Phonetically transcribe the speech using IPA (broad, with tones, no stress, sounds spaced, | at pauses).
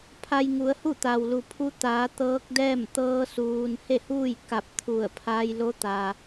pʰ a˧ j ŋ u˩˧ ə̯ h u˥˨ t̪ a˩ w l u˩ pʰ u˧ t̪ aː˩˧ t̪ ɤː˧˥ k̚ d ɛː˥˨ m t̪ ɤː˧ s uː˩ n h e˥˨ h uː˥˨ j k a˧˩ p̚ t̪ʰ u˧˩ ə̯ pʰ a˧ j l o˧˥ t̪ a˩